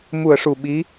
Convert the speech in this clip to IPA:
m u˨˩ ə̯ ʂ u˨˩ ɓ i˧˥

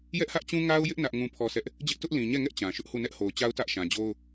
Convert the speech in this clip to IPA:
j ɛ˦ ʔ h ä˦ ʔ t͡ɕ ũ˦ ŋ a˦ ʊ̯ j ɪ˦ ʔ n ä˦ ʔ ŋ ũ˦ pʰ ɔ˦ s ɛ˦ ʔ | d͡ʑ ɪ˦ ʔ t ʊ˦ ʔ l ĩ˨ ɲ ɛ˦˨ ŋ ɛ˦ ʔ t͡ɕ ã˨ ʃ ʊ˦ ʔ h u˦˨ n ɛ˦ ʔ h o˨ ʊ̯ t͡ɕ a˦ ʊ̯ t ä˦ ʔ ʃ ã˨ d͡ʑ o˦ ʊ̯

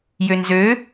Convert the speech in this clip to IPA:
j ø n z ø

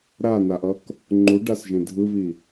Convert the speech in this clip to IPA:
ɾ a n a ʔ ʌ k | ŋ͡ǃ u ɖ a s ʒ ẽ dʱ ɯ β i

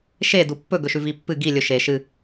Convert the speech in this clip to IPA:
ʃ e d u pː ɵ ɡ ɵ ʃ ʉ v i pː ɨ ɡ i lʲ ɵ ʃ e ʃ ɨ

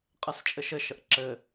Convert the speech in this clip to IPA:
qʼ ɛ s t͡ʃʼ ɘ ʃ ɘ ʃ ə ʔ ǁ ɘ

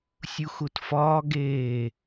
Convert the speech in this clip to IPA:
sʲ u x u t f ɒː ɡ eː

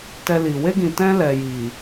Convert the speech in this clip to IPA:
t ɛ˧ l i˨ w e˧ ɡ ĩ˨ t ɛ̃˧ l ɛ˨ j i˨

